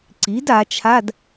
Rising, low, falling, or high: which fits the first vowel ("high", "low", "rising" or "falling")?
rising